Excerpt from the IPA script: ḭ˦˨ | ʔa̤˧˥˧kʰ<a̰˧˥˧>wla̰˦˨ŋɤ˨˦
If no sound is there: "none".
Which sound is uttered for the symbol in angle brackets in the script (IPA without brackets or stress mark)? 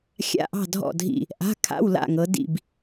a̰˧˥˧